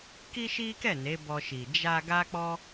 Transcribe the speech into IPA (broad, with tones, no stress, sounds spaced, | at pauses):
k i˦ ʃ i˦ k ɛ˦˨ n e˨˦ b ɔ˧ ʃ i˨ d͡ʒ a˧ ɡ a˦ k͡p ɔ˦